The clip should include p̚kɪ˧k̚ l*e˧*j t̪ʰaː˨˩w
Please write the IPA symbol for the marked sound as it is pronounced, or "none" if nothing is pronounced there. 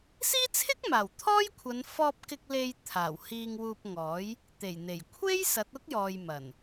e˧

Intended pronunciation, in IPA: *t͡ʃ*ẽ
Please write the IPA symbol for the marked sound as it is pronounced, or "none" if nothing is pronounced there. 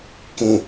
k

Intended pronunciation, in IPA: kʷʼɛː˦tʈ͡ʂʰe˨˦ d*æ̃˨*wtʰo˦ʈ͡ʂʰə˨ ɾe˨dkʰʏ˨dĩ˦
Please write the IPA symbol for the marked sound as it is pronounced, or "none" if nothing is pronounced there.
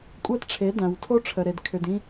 æ̃˨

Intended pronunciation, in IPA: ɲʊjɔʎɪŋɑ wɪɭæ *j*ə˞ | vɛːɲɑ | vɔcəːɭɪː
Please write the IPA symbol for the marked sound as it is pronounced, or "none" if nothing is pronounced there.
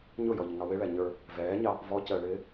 ɲ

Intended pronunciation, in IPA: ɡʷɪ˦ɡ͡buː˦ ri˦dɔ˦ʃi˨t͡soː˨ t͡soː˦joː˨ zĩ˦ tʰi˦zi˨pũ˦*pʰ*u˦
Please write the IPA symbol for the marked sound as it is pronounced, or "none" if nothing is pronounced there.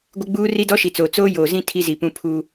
pʰ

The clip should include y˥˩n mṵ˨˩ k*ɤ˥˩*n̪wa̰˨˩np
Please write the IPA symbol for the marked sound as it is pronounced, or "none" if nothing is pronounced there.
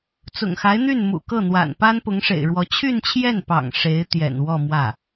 ɤ˥˩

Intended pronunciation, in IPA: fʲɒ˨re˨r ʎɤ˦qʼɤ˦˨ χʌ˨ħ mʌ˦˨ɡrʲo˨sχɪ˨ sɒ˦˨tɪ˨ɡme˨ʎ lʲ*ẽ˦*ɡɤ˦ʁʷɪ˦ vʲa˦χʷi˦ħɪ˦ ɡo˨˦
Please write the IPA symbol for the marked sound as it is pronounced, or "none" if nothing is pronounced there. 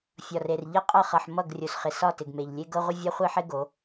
e˦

